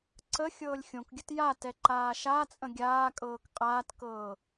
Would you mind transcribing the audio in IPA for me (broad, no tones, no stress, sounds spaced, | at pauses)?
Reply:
ǀ ə xʲ ɤː lʲ xʲ õ k ɡʲ ə t j a t ɛ ǃ aː ʃ a t͡sʼ ə̃ ɡʲ aː kʼ ɤː k qʼ aː t k ɤː